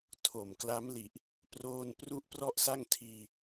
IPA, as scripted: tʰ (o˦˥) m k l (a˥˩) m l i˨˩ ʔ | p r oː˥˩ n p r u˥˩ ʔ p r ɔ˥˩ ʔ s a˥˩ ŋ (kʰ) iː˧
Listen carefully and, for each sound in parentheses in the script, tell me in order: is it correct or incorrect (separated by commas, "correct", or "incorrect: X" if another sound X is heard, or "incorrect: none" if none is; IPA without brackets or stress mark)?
incorrect: o˨˩, incorrect: a˦˥, incorrect: tʰ